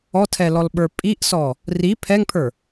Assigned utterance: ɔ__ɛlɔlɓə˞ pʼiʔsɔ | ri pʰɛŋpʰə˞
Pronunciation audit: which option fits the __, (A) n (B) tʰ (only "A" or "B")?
B